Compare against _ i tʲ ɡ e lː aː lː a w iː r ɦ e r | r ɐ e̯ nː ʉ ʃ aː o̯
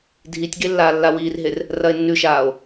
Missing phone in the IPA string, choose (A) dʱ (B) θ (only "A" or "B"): A